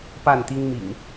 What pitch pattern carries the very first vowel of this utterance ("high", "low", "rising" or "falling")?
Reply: falling